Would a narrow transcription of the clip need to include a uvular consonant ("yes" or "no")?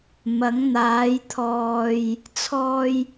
no